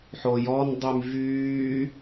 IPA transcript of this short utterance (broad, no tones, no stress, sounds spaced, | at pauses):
ħ o j ɔ n dˤ y m v yː